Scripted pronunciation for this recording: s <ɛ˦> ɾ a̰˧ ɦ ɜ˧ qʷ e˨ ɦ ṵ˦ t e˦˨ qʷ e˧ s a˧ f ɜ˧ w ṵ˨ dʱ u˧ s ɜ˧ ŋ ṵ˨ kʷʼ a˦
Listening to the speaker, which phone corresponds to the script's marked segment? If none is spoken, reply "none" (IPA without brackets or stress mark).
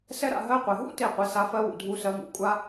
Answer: ɛ˦